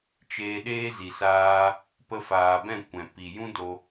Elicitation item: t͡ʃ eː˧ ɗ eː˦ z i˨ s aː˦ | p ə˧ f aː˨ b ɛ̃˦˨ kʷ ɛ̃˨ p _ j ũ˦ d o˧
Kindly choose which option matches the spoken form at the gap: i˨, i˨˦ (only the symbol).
i˨